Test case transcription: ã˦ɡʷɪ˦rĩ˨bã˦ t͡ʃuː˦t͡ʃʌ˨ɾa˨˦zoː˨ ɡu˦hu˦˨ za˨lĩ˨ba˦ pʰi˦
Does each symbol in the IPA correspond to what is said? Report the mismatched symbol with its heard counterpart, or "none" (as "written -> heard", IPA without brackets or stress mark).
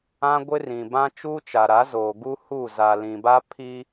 ʌ˨ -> a˨